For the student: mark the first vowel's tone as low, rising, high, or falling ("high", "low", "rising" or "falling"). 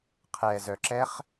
low